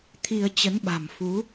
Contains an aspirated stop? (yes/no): yes